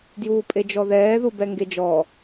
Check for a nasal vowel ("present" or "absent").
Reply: absent